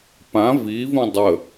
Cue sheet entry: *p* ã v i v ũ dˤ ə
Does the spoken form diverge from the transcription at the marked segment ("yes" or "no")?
no